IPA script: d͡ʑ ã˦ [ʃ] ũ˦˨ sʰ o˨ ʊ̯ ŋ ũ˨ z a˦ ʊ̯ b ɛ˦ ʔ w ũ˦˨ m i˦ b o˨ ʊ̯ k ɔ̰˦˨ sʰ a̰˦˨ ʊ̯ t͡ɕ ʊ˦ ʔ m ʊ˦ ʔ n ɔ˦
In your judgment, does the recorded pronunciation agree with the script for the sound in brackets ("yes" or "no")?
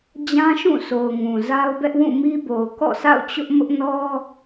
yes